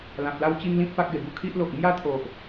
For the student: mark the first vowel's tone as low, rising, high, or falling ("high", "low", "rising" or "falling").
low